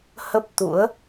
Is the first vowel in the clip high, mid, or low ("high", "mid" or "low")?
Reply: mid